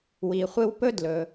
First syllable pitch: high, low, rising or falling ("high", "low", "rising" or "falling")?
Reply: low